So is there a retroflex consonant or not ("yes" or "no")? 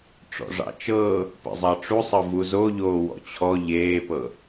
yes